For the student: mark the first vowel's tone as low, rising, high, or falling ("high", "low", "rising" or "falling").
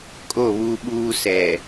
falling